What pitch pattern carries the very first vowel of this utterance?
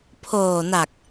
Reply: low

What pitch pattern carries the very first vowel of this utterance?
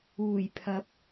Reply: low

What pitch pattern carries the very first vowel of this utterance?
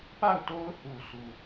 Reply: falling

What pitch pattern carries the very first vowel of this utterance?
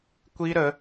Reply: high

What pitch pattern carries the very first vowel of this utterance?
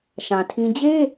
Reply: low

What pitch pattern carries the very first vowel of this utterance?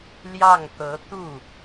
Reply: falling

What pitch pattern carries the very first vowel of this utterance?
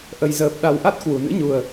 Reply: low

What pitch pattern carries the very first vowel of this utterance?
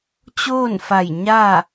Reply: falling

